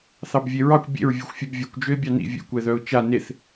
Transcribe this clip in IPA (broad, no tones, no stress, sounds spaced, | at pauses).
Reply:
θ ɑ b vʲ e ɹ ɑ kʷ bʲ ḛ ɹ vʲ œ xʷ fʲ ɛ b vʲ œ kʷ d͡ʒ ø ɪ̯ bʲ ɑ n ḭ vʲ ḛ kʷ ɛ ð œ ʊ̯ t͡ʃ a n e θ